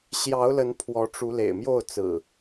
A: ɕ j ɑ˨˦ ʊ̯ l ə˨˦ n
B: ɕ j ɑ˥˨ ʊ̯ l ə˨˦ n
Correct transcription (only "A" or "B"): A